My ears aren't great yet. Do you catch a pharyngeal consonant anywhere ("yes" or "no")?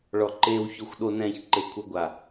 no